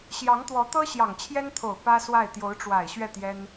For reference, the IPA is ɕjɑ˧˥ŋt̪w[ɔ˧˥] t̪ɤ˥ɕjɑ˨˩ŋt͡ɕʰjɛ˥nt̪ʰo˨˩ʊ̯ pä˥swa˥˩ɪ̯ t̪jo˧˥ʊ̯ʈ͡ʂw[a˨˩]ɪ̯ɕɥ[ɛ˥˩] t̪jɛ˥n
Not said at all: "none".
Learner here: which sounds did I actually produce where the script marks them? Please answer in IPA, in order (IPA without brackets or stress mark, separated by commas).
ɔ˧˥, a˨˩, ɛ˥˩